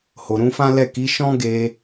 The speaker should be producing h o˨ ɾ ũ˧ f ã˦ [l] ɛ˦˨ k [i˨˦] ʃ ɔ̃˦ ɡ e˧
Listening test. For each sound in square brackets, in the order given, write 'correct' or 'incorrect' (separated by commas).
correct, correct